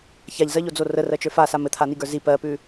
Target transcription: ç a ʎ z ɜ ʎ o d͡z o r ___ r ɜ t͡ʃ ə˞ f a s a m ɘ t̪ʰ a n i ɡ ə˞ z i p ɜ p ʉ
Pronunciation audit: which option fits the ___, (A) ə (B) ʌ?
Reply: A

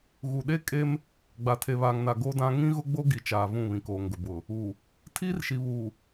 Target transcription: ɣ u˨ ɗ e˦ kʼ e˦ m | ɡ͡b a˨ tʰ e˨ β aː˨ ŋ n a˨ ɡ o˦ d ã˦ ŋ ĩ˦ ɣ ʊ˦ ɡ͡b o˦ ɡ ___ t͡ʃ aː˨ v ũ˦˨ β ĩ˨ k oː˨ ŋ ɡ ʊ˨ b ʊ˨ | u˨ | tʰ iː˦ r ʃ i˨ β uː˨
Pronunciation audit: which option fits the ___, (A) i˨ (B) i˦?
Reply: A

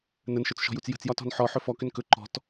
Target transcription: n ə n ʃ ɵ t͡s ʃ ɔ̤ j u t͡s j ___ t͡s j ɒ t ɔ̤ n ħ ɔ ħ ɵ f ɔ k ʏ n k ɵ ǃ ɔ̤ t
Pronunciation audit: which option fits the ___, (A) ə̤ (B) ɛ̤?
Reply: A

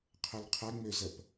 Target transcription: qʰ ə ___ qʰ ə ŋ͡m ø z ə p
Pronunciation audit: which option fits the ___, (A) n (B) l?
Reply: B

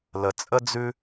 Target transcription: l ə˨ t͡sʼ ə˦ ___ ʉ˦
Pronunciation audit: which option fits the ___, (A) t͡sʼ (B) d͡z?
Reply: B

